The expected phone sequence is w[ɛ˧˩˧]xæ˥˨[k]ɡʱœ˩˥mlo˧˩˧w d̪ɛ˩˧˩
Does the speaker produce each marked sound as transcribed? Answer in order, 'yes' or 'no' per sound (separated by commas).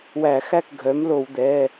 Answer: no, yes